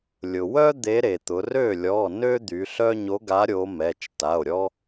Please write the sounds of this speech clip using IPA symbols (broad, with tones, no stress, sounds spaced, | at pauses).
lʲ ʊ˩ w œ˥ d̪ e˧˥ ɾ e˩ t̪ ʊ˩˧ r ø˥˩ lʲ ɔ˩˧˩ n ø˥ d̪ y˩˧ ɬ œ˥ ɲ o˧˥ ɡ a˧˥ ɾʲ o˧˥ m ɛ˩˧˩ t͡ʃ t a˩˧˩ o̯ ɾʲ ɔ˥